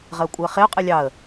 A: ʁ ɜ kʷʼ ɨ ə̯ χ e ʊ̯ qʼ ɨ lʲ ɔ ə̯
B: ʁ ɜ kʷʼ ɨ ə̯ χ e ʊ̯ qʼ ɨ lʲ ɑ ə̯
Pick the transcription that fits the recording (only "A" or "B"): B